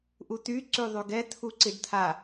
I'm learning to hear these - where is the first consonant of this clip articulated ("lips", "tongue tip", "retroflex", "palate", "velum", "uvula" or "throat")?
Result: throat